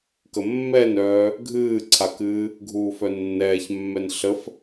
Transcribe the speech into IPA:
k ə mː ɛ n œː | ɡʱ ɨː ǀʰ a k ɨː | ɡʱ uː f œ nː ɛː ç mː ɛ n ɬ ə f

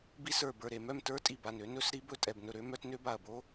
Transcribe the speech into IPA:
b i˦˥ s ə˞˧˩ b ə˞˧˩ ɾ e˧˩ m œ˥˨ m t ə˞˦˥ tʼ i˧˩ b a˧˩ n ø˦˥ n ɵ˦˥ s ɾ i˦˥ b ɵ˥˨ tʼ ɛ˧˩ b n ɵ˧˩ ɾ ø˦˥ m œ˦˥ t n ø˦˥ b a˧˩ ɐ̯ b o˦˥

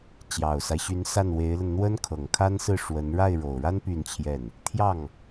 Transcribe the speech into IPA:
t͡ɕ j ɑ˨˩ ʊ̯ s a˦ ɪ̯ ɕ y˧˥ n s a˥˩ n w e˧˥ ɪ̯ l ə˧ n n̪ w ə˥ n kʰ ɤ˨˩ ŋ kʰ a˥ n s ɹ̩˥˩ ʂ w ə˧˥ n ɻ a˥˩ ɪ̯ ɻ o˨˩ ʊ̯ ɻ a˥ n p y˥˧ n t͡ɕʰ j ɛ˥˩ n | t̪ʰ j ɑ˥˩ ŋ

